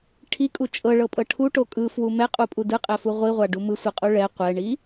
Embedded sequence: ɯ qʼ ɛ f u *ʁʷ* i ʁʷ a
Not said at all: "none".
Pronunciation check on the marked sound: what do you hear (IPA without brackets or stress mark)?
ʁʷ